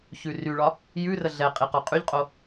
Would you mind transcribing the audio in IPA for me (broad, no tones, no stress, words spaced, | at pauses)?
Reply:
çʉryɭɒ | jʉrə ɮɛ qʼiqɔqʼyʎqʼo